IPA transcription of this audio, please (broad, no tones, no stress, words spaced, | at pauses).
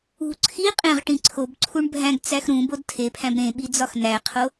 ṳ ǀʰi qʼẽʁʈĩ ǀʰobǀʰuɳ bʱæ̃ɡt͡sæx ɾũbod tʰepʰæ̃b ɾẽɓi d͡zɒxnæqʰo